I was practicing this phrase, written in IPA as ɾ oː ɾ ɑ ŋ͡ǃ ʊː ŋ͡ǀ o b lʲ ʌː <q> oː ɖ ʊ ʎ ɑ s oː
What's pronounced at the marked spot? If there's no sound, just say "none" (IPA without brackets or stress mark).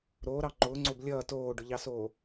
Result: t